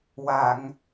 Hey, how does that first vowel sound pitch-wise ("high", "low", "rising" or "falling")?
low